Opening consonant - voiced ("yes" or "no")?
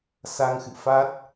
no